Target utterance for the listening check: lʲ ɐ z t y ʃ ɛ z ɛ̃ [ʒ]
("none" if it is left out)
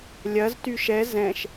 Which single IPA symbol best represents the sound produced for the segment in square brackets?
ʃ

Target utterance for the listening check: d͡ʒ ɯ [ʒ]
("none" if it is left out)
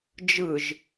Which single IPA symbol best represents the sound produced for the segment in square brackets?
ʒ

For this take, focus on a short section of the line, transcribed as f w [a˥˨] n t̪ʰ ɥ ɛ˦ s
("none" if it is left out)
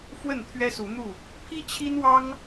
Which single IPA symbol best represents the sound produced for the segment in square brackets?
ə˥˨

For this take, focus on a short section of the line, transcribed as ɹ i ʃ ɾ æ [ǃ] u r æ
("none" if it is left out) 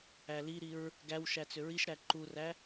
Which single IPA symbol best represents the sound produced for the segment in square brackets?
ǃ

